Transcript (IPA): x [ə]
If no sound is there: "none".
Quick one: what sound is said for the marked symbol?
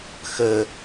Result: ə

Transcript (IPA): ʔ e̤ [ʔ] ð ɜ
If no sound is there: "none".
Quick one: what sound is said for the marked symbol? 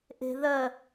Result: none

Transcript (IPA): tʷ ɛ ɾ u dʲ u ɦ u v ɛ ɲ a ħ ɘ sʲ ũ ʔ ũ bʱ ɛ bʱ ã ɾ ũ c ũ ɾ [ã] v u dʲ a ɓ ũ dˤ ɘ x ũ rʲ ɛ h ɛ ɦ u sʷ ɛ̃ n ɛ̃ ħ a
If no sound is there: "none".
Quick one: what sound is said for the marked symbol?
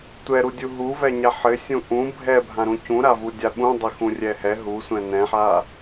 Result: a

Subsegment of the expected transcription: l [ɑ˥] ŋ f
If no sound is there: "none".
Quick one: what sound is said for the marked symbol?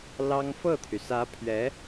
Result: ɑ˥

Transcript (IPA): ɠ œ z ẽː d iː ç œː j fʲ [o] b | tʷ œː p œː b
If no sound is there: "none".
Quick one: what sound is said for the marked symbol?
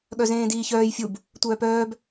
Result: u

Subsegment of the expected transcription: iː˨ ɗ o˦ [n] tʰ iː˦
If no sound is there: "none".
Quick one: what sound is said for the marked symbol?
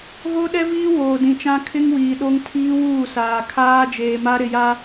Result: ŋ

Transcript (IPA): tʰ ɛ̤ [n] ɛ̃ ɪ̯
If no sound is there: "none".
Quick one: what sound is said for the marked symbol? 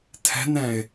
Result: n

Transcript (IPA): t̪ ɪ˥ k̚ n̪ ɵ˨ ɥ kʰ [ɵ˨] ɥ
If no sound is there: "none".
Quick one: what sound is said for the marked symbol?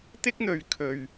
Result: ɵ˨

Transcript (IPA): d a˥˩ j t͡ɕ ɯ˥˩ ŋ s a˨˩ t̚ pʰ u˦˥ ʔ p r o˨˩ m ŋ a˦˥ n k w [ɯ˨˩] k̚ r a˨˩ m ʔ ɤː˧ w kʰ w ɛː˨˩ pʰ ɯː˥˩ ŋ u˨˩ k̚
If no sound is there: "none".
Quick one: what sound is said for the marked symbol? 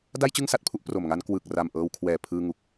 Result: ɯ˨˩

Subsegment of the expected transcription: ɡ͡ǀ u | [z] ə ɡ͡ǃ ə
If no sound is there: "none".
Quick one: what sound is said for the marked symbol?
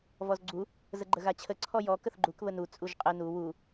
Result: z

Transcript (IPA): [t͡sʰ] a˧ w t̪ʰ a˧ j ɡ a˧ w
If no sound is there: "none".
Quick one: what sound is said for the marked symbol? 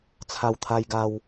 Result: t͡sʰ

